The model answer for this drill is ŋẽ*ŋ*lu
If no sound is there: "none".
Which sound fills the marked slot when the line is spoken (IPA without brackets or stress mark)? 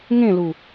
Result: none